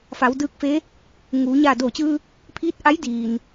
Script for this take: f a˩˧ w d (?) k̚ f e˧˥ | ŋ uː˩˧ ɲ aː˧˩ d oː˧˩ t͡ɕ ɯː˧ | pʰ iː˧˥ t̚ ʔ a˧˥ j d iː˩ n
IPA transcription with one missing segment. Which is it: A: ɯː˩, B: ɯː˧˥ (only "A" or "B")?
B